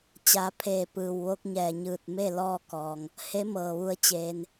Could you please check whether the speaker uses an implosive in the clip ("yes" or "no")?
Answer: no